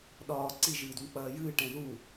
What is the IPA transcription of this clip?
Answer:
ɗ ɒː ǀ i ʒ ɨː d w ə̃ k͡p ɐː j ɨː ʈ ɛ̃ ð u

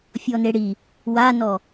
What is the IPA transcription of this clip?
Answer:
fʲ ɔ n e ɽ i | w a n ɔ

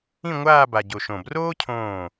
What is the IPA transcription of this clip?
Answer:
ĩ˥˧ ŋʷ aː˥˧ b a˧ ɟ o˧ ʃ õ˧˩ b r oː˥ cʰ õː˧˩

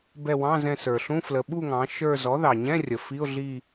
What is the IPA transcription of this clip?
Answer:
b ɛ˦˨ w ɑ̃˧˥˧ z ɛ̃˦˨ s ə˞˩ ɬ ũ˧˥˧ f l ə˩˧ ɓ u˦˨ ŋ ɑ̃˩˧ ʃ ə˞˦˨ z ɔ˩˥ ð ɑ˩ ɲ ɛ̃˧˥˧ rʲ ə˩ f i˧˥˧ ʊ̯ ɮ i˦˨

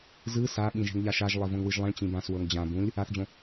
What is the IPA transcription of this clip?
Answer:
z ɯ s a ɓ ĩ ʒ e̤ ŋ ʎ a ʃ a ʒ lˠ e v õ ŋ w ɯ ʒ lˠ ĩ ɭ t͡ɕ ĩ b ã s w ɤ ŋ d͡ʑ ã b ũ lʲ | a θ d͡ʑ õ

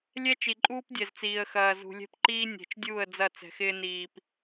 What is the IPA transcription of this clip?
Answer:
lʲ ɛ˦ t͡ʃ i˨ ǃʼ uː˦ p dʲ ɛ˨ z t͡s iː˨ ə̯ x ɐː˨ z ṳ˨ lʲ ɛ̤˦ p ǃ iː˦ nʲ ɛ̤˨ t͡ʃ dʲ uː˦˨ ə̯ d͡z ɐ˦˨ t͡s ɛ̤˨ x ɪː˦ n iː˨ p

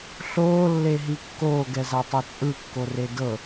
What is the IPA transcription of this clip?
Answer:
ɬ oː lː e ɦ i kː oː ɡ ɛ z a tˤ o t͡sʼ ɯ kː o r e d ɤ

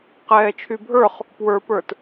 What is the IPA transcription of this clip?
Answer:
q ɛː t͡ʃʰ y bʱ ə˞ χ | p w ə˞ p ə˞ t

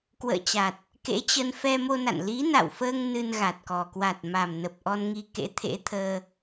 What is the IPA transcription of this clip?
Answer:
k w ə̰ː˧˨ t͡ɕ a˨˩ t̚ | k ḛ˧˥ t͡ɕ ə˧ n f ɛ˧ m o˧ n a̰˧˨ n l i˨˦ n a̰˧˨ w f əː˧ ŋ n ɨ˧ n ɣ a˨˩ t̚ k ɔ˨˩ k w a˨˩ t̚ m a˨˩ m n ə˨˩ p̚ ʔ ɔ˧ n ŋ i˧ k ḛ˧˥ t̪ʰ ḛ˧˥ t̪ʰ əː˧

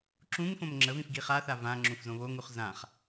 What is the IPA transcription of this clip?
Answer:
ǁ ũ ŋ f õ m ŋ͡ǁ ə v ĩ f ɡ i χ a θ a v ã ŋ͡ǁ ũ f z õ β o ŋ u χ z ã χ

